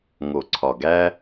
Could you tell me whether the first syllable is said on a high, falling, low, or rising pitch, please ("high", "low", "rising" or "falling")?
low